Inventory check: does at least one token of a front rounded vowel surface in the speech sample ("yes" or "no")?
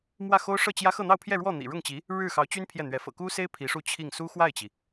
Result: yes